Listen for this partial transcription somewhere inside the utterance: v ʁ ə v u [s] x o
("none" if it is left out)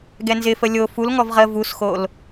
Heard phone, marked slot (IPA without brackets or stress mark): s